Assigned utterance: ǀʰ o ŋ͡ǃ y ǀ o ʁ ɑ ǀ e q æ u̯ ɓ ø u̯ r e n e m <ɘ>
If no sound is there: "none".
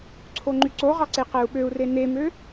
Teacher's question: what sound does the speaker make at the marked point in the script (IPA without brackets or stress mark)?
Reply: ø